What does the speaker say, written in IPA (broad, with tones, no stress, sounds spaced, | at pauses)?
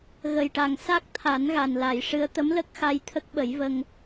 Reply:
ɣ ə˨˩ j ʈ a˨˩ ŋ s a˦˥ k̚ t̪ʰ a˨˩˦ n ɣ a˨˩ n l a˨˩˨ j ʂ ɨ˧˥ ə̯ t̪ ə˧˥ m l ə˦˥ k̚ x a˧ j t̪ʰ ə˦˥ k̚ ɓ ə˨˩˦ j v ə˧ ŋ